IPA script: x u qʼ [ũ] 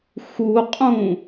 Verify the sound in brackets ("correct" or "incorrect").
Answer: correct